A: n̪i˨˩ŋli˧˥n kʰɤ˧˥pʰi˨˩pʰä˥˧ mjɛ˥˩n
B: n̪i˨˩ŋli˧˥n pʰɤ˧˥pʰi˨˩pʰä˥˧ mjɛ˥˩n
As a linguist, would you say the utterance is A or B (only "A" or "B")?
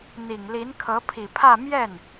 A